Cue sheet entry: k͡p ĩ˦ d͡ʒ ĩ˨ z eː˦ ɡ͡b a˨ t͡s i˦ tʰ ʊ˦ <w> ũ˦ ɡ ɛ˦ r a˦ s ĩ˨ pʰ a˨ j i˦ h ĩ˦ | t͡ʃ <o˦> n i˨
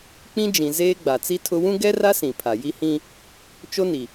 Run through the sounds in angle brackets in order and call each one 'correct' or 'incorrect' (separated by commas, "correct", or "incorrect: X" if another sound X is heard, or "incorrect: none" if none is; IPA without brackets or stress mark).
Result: correct, correct